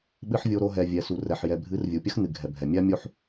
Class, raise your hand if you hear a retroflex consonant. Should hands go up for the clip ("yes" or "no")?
no